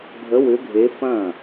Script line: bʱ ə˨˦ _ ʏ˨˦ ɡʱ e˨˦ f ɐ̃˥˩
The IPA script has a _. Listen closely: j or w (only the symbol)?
w